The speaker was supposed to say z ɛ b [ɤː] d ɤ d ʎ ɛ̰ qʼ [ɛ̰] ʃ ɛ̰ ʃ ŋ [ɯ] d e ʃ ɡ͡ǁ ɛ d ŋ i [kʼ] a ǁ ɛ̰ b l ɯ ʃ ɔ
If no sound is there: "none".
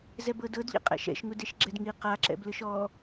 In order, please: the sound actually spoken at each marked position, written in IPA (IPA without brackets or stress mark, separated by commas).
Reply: ɤ, ɛ̰, u, q